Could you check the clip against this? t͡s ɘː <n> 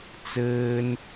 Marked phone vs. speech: correct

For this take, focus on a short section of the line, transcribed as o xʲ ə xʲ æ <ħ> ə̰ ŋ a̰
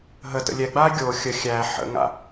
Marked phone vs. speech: correct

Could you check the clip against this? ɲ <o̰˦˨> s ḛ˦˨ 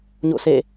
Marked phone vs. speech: correct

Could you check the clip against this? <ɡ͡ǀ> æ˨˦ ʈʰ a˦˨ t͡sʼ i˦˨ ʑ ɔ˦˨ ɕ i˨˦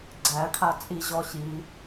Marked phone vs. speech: correct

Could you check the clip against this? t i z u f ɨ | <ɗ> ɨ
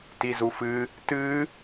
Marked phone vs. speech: incorrect: t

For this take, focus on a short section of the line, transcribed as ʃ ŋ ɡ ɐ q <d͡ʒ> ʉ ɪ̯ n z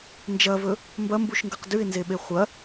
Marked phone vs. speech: incorrect: d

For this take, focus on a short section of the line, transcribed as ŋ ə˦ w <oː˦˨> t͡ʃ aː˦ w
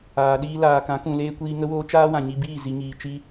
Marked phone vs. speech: incorrect: oː˦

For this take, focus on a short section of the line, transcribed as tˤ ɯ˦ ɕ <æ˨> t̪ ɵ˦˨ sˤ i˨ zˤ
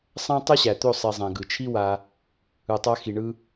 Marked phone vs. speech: correct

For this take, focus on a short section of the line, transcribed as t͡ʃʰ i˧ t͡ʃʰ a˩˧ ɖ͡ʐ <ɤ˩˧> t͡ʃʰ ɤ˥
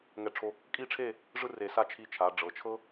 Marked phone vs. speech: correct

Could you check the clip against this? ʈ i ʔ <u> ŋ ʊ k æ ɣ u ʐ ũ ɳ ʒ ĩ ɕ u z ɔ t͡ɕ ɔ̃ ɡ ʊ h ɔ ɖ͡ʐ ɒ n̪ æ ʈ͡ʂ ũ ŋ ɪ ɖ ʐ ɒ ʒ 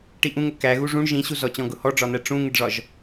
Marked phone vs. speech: incorrect: ũ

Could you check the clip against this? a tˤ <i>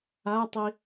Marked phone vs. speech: correct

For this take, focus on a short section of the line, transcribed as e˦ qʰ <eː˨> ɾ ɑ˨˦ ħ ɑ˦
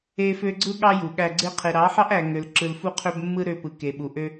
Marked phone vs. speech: incorrect: e˨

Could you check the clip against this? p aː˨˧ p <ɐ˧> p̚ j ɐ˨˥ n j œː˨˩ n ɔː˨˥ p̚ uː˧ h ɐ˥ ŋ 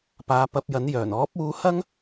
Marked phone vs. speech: correct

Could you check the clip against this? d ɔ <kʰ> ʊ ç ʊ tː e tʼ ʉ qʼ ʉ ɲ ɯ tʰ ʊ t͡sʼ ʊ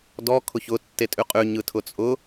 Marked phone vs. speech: correct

